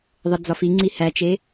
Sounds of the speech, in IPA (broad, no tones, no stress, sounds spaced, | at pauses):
ðˤ ə d͡z ɒ f i ŋ͡ǀ i h æ t͡ʃ e